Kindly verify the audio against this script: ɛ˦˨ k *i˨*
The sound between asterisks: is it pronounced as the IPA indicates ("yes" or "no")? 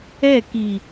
yes